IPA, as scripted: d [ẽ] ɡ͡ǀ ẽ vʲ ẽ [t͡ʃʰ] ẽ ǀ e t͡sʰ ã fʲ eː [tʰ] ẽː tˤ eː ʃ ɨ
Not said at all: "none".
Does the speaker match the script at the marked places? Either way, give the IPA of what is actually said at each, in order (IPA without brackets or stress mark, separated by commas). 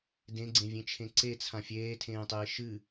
ẽ, t͡ʃʰ, tʰ